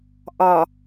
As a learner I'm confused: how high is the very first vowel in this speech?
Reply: low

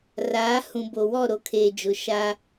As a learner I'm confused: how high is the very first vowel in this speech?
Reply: low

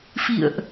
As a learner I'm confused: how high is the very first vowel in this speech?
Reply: high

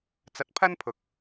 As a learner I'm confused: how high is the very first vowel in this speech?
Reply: low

